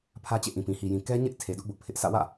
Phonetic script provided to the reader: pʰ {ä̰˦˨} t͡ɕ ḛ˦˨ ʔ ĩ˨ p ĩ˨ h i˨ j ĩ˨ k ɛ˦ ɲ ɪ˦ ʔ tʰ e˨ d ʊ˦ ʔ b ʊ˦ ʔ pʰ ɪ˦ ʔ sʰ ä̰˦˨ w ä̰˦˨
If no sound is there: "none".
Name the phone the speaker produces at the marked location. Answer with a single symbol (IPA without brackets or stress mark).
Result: ä˦